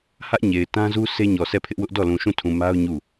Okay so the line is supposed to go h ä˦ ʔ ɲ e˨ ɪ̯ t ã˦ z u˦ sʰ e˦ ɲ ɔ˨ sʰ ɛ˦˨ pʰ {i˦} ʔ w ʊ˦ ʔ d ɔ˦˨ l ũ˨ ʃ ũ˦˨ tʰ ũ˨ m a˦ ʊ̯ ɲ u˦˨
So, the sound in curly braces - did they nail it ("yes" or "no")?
no